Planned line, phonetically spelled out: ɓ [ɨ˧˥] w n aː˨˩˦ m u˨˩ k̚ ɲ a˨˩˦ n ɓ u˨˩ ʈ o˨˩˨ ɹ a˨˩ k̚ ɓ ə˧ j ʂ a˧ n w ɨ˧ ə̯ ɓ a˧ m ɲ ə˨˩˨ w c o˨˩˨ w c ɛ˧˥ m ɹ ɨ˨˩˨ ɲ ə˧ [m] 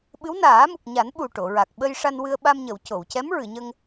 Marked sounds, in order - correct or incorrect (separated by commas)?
correct, incorrect